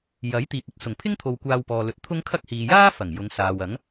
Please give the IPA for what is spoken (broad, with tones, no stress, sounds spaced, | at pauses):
j ɐ˨˥ j t̪ iː˨ p̚ ɵ˨ t̚ s ʊ˨˩ ŋ pʰ ɪ˥ ŋ t̪ʰ o˨ w kʷ aː˧ w p ɔː˨ l ɵ˨ t̚ t̪ʰ ʊ˥ ŋ kʰ ɐ˥ k̚ h iː˨ j aː˥ f ɐ˨˩ ŋ j ʊ˨˧ ŋ s aː˨ w ɐ˨˥ ŋ